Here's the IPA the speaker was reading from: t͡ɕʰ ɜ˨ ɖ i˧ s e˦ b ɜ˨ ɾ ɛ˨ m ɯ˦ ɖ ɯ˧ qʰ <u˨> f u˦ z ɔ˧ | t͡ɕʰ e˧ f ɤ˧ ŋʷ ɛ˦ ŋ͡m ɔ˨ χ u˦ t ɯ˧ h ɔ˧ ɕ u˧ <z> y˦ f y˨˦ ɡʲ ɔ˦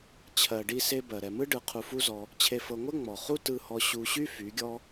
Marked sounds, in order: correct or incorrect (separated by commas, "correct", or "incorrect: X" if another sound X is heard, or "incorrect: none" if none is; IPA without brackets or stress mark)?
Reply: incorrect: u˧, incorrect: ɕ